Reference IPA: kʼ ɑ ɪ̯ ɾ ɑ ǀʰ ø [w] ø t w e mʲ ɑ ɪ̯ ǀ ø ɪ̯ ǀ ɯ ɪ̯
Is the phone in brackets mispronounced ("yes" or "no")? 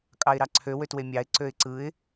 no